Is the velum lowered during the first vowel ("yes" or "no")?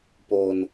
no